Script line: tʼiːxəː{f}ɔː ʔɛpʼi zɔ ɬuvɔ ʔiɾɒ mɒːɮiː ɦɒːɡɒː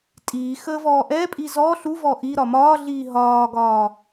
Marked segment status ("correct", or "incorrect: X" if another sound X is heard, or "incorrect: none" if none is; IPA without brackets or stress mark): incorrect: v